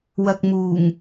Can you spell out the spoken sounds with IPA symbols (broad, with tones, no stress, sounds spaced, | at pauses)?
w ɐ˨ k̚ m uː˨˩ ŋ